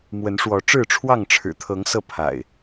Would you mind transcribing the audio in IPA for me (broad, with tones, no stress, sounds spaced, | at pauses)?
m w ə˨˦ n ʂ w ɔ˨˦ ʈ͡ʂ ɻ̩˥˨ ʈ͡ʂʰ w ɑ˥˨ ŋ ʈ͡ʂʰ ɻ̩˨˩ t̪ʰ ɤ˨˦ ŋ s ɤ˥˨ pʰ a̰˨˩ ɪ̯